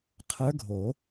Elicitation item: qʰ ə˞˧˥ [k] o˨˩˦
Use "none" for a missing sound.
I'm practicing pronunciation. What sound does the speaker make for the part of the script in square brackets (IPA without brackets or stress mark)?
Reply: ɡʱ